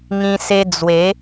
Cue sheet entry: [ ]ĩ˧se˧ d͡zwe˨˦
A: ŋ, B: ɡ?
A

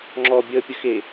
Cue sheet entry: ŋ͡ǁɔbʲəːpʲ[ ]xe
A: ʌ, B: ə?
B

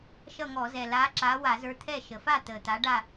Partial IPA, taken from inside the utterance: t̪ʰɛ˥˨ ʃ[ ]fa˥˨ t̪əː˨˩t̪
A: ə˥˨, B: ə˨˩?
B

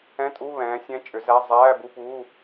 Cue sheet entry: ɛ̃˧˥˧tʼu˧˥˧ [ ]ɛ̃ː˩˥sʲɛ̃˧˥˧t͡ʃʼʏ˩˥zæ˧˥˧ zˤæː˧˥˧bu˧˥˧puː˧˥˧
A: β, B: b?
A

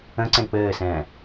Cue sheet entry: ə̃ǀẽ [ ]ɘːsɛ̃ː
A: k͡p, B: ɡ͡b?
A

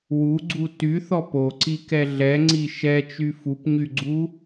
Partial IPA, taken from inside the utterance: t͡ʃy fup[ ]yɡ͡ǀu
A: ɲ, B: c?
A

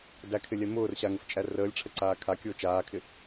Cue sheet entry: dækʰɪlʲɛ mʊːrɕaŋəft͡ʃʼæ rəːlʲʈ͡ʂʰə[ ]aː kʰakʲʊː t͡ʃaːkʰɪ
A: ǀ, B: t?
A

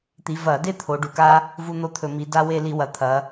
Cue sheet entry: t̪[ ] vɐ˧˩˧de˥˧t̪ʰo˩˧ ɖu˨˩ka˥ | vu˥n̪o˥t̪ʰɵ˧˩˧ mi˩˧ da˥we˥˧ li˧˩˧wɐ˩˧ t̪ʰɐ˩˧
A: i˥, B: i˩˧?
B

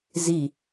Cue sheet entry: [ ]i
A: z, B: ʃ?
A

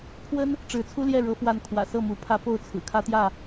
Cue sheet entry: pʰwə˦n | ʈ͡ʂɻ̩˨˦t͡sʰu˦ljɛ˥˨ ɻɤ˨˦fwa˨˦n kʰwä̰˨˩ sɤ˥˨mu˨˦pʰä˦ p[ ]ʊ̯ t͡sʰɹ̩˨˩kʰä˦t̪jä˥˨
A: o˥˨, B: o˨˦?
A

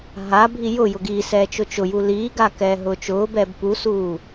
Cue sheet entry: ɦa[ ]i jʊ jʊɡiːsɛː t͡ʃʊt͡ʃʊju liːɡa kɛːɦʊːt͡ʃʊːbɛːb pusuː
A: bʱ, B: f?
A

